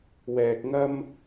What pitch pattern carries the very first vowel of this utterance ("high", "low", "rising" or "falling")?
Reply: low